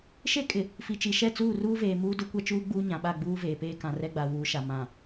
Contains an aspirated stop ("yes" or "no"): no